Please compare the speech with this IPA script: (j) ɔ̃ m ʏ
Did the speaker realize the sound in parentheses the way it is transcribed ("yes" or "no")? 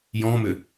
yes